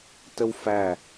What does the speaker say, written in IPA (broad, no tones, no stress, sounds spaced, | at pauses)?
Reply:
t ə w f æ